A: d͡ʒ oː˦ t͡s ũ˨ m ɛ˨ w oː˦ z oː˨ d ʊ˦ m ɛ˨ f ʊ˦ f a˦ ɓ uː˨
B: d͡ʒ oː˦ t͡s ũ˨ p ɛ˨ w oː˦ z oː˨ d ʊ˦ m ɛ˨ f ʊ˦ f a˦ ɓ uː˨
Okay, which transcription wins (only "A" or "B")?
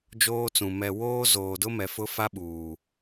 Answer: A